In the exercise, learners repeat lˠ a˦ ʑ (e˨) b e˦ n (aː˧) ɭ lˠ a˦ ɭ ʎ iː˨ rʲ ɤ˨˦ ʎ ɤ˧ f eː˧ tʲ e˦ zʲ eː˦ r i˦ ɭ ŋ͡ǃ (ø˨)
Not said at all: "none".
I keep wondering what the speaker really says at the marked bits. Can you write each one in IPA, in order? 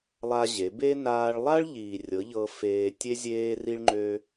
e˨˦, aː˧, ø˦

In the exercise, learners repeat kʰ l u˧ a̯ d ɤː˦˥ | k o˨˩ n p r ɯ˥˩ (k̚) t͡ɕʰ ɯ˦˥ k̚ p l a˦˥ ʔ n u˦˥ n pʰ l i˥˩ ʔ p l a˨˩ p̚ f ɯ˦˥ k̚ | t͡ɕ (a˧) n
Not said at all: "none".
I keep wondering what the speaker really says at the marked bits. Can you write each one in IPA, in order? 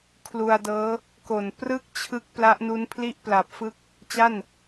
k̚, a˥˩

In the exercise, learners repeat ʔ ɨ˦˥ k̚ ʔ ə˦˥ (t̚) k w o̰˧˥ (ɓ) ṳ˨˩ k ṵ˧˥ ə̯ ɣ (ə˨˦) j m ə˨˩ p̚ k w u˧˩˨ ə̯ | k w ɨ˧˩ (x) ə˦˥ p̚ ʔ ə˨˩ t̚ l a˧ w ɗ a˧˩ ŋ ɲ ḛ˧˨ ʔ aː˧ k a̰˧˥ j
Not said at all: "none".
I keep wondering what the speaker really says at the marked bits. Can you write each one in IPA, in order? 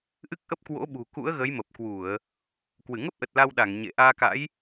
p̚, ɓ, ə˨˦, ŋ

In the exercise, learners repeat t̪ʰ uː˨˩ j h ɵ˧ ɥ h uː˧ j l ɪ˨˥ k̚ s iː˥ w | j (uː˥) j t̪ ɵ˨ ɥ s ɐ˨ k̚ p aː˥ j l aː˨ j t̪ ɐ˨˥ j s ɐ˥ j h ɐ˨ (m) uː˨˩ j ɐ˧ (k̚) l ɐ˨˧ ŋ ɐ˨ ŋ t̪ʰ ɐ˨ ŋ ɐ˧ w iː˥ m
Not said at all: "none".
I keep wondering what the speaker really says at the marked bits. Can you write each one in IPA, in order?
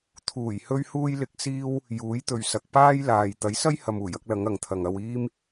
uː˨˥, m, k̚

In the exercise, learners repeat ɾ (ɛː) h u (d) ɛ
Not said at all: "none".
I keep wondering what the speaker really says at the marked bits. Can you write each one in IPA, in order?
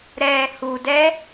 ɛː, d

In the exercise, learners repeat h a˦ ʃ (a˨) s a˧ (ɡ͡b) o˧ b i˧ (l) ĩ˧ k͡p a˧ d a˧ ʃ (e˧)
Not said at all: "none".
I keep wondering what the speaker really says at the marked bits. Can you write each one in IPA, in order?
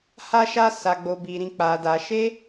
a˦, ɡ͡b, ɾ, e˦

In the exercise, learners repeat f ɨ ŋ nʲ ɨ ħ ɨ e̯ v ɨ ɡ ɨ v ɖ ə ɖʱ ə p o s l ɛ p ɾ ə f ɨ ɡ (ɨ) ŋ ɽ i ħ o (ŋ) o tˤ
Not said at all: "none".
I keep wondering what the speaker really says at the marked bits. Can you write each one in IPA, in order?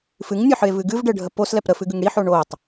ɨ, ɳ

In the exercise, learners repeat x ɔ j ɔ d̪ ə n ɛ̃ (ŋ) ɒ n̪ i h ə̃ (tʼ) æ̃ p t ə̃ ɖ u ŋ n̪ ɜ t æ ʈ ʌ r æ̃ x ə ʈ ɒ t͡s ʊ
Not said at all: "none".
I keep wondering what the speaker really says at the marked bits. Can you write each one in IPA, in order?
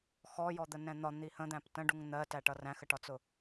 n̪, d̪

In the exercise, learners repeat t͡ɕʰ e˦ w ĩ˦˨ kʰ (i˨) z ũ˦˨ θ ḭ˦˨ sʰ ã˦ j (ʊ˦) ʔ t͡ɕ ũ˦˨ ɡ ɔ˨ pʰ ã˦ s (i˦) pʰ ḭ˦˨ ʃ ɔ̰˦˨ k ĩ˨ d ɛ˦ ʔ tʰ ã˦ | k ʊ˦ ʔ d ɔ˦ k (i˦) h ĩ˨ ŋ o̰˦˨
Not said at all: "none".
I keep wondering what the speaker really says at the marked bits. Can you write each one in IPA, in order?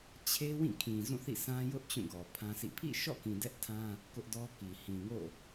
ĩ˨, ʊ˦, ḭ˦˨, i˨

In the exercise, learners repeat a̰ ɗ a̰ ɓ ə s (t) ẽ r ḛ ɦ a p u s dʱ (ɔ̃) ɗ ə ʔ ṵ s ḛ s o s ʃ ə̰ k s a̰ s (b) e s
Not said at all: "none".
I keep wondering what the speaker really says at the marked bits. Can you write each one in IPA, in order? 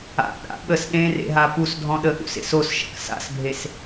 ɗ, ɔ̃, bʱ

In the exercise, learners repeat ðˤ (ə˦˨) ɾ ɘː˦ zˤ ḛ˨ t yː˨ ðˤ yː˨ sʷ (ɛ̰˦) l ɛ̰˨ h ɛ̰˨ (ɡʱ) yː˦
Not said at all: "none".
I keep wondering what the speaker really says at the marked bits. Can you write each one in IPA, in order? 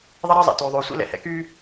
ə˦, ḛ˦, k

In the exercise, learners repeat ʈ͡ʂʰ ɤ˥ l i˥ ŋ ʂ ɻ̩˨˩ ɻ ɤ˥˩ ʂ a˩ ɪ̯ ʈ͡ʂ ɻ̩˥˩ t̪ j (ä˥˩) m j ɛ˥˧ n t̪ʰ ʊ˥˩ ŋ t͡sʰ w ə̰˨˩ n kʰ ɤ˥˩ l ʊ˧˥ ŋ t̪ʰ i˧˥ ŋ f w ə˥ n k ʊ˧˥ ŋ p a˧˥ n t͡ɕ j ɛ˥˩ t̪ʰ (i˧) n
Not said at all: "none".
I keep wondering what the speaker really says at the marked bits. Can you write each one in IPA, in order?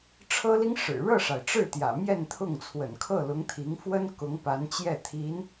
ä̰˨˩, i˧˥

